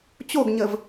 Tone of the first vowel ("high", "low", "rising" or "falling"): falling